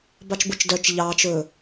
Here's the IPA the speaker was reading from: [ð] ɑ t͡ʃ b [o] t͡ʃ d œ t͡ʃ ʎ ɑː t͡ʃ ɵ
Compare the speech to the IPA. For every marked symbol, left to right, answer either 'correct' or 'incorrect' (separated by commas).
incorrect, correct